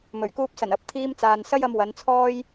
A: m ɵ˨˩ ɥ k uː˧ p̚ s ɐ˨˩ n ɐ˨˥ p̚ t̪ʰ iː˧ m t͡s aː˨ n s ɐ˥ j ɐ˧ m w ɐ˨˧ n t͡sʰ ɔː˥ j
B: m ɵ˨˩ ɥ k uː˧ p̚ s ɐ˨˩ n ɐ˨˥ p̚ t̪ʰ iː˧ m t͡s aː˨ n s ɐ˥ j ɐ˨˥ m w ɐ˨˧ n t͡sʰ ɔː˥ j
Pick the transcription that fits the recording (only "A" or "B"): A